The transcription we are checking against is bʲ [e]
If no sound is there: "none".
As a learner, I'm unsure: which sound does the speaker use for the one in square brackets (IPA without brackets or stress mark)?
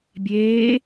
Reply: eː